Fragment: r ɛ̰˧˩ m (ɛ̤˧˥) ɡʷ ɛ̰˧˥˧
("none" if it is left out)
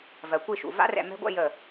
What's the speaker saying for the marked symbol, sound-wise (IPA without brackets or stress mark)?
ɛ̤˧˥